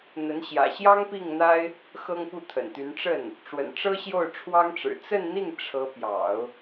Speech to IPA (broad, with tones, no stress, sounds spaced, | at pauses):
n̪ ə˧˥ n ɕ j ä̰˨˩ ɕ j ɑ˥ ŋ p i˥˩ ŋ n̪ a˥ ɪ̯ | x ɤ˥ ŋ p u˥˩ t̪ʰ ə̰˨˩ n t̪ y˧˥ n ʈ͡ʂ ə˥˩ n | ʈ͡ʂ w ə̰˨˩ n ʈ͡ʂ ɤ˥ ɕ j o˥˩ ʊ̯ ʈ͡ʂʰ w ɑ˥ ŋ ʈ͡ʂ ɻ̩˨˩ t͡s ə˥˧ n n̪ i˥˩ ŋ ʈ͡ʂʰ ɤ˧˥ p j ɑ̰˨˩˦ ʊ̯